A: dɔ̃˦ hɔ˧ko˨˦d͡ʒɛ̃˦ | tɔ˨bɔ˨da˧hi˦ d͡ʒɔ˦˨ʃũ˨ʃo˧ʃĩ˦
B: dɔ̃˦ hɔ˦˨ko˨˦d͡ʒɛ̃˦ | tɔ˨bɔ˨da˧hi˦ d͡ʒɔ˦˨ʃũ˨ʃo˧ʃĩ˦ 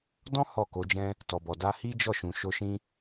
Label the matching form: B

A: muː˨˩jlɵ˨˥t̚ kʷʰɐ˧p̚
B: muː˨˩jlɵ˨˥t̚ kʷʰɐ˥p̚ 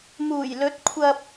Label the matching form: A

